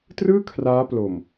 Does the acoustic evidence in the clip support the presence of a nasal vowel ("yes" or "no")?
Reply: no